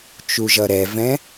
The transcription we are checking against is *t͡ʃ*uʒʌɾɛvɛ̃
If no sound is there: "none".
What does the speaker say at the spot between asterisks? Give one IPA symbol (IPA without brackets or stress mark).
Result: t͡ʃ